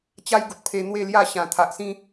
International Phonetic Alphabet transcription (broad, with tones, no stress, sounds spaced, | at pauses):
t͡ɕ a˦ j ɡ u˨ t̚ pʰ e˧ n̪ w e˥˧ l j a˥˧ ɕ ã˨˩ t̪ʰ a˨ ʔ s ĩ˦